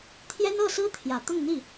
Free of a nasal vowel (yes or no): yes